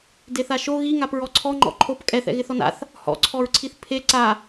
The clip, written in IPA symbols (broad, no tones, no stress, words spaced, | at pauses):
deθaʃo ɣiŋap ɹɔǀʰɔ ŋ͡ǃɔ̰ǃʰop kʼɛθɛ̰ ɣɪθɔna̰θ | hɔ̰ǀʰɔɹǀʰiθ pʰe ǀa